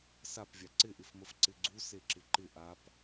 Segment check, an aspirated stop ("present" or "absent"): absent